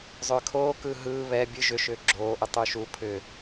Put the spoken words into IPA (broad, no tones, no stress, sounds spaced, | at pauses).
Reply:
zˤ ʏː kʰ oː k ɯː ɦ ɯː β ɛ bʲ ɯ ʒ ʏ ʃ ʏː ɡ͡ǁ oː ʔ ʏ tˤ u ʃ u pʰ ʏ